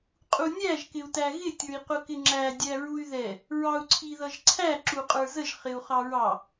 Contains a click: yes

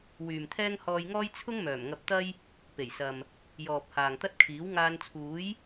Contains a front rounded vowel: yes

